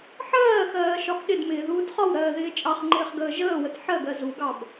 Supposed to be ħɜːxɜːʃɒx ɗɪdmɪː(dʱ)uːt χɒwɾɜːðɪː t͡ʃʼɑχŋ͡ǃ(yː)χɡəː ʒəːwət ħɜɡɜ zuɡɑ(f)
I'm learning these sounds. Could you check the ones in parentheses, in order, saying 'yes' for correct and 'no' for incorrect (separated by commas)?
no, no, no